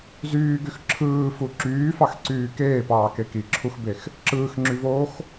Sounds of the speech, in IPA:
z yː ɡ y x ǁʰ ɯː f u ǁ yː f ɑ x ǀ yː k eː p ɑː k e k i ǁʰ u x b e x | ǁ ɯː x ŋ͡ǁ y v oː x

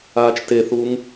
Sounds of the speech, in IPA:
aː t͡ʃ t e θ uː ŋ

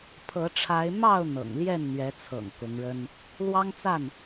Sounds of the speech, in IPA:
pʰ ɤ˨˦ ʈ͡ʂʰ a˨˦ ɪ̯ m ɑ˥˨ ʊ̯ n̪ ɤ̰˨˩ ŋ l j ɛ˥˨ n n̪ ɥ ɛ˨˦ t͡sʰ ɤ̰˨˩ ŋ k ʊ˨˦ ŋ ɻ ə˦ n | l w ɑ˦ ŋ t͡s a˥˨ n

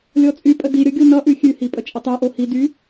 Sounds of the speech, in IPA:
lʲ ɔ t͡sʼ y pʼ ə d i ɾʲ ʌ ɡʲ o n ʌ ʔ ʉ xʲ ʉ h i pʼ ə t͡ʃʼ ə tˤ y ʔ o h i d y

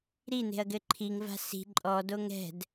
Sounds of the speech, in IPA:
ɾ i n e̤ ɐ̯ ɡ ɘ ǃʰ i ŋ v a̤ s i̤ ǃʼ ɔ d o ŋ ɛ̤ d

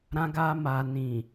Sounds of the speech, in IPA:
ɾ ã˧ ɡ a˧ m a˨ n ĩ˨

